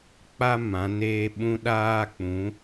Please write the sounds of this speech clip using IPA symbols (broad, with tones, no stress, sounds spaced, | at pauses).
k͡p a˦ m ã˨˦ n eː˦ ɓ ũ˦ ɗ aː˦ k͡p ũ˨˦